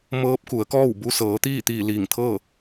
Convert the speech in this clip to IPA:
m ɤː˧˥ p̚ k u˩˧ ə̯ k ɔː˥˨ w b u˧ s ɤː˩˧ t̪ iː˥˨ t̪ iː˧˩ l iː˧˩ ŋ t̪ʰ ɤː˥˨

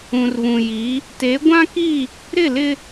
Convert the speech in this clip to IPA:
ũ˨ r β ũ˨ j i˨˦ | t e˨˦ ɡʷ ã˦ k i˦˨ | ɾ ɪ˦˨ l ɪ˦

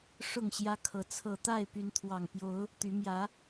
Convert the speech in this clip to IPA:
ʂ ʊ˥˨ ŋ ɕ j ä˦ kʰ ɤ˨˦ t͡sʰ ɤ˨˩ t̪ a˥˨ ɪ̯ p y˨˦ n t̪ʰ w ɑ˨˩ ŋ p j o˨˦ ʊ̯ | t̪ y˨˦ m j ä˨˦

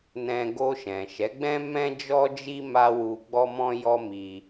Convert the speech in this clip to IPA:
n ɛ̃˧ ɡ o˧ ʃ ɛ̃˨ ʃ ɛ˨˦ ɡ͡b ɛ̃˦ m ɛ̃˦ d͡ʒ ɔ˦ d͡ʒ i˦ m a˦ w u˧ ɡ͡b ɔ˧ m ɔ̃˧ j ɔ˦ m i˧

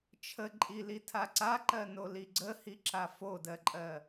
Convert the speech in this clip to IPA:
t͡ʃʰ ə ǃʼ i l i tʰ a ǀ a ǃ ɜ n o l i ɡ͡ǀ ə h i ǁ a f o d ɜ ǃʼ ɜ

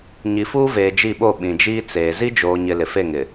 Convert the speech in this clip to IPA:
ɲ i˨ f uː˦ v eː˨ d͡ʒ i˦˨ ɓ o˦˨ ɓ ĩ˨ d͡ʒ iː˦ t͡s eː˨ z i˦ d͡ʒ oː˨ ɲ ɪ˨ l ɪ˨ f e˦˨ ŋ ɪ˨

